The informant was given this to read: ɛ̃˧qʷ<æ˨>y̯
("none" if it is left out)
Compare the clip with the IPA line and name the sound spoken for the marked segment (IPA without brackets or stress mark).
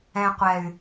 ɛ˨